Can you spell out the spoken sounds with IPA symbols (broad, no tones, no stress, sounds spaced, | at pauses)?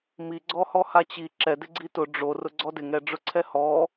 m i ɡ͡ǀ ɔ h ɔ h a t͡ɕ i ǁ ɛ d ɪ ɡ͡ǀ i t ʊ ɖ͡ʐ o r ʊ ɡ͡ǀ ɔ d ɪ ŋ ɛ ɖ͡ʐ ʊ ǀʰ ɛ h ɔ